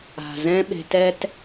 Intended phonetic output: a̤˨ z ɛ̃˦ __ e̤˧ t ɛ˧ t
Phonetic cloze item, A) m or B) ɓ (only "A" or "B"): B